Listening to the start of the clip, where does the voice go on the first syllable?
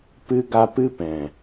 high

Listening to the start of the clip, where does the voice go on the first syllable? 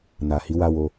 low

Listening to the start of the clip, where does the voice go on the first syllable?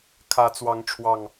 rising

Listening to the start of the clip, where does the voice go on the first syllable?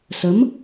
rising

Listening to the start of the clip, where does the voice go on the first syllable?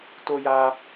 high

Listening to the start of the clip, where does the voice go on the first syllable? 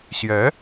rising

